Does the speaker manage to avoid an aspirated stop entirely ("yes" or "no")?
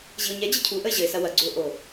no